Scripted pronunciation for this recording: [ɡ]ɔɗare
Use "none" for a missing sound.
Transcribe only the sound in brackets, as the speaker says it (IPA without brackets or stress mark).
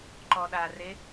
ǃ